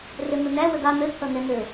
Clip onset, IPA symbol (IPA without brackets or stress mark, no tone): r